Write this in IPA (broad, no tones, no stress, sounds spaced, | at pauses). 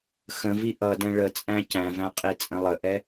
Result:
x ə̃ v i ʔ ʌ d ɛ̃ ɭ ə t͡sʼ æ̃ c æ̃ v æ̃ qʼ i t͡sʼ ə̃ lˠ ə ʔ ɛ